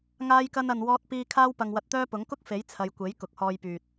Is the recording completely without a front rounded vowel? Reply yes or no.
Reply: no